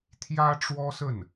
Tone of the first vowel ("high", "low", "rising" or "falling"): high